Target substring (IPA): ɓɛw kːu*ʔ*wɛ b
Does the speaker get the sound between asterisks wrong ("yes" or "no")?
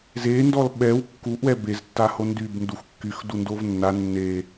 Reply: no